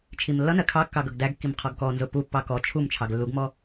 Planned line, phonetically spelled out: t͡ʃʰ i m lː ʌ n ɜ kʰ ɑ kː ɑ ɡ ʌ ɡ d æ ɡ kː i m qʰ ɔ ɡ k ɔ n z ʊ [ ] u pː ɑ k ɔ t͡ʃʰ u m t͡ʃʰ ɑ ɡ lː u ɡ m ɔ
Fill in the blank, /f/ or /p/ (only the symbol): p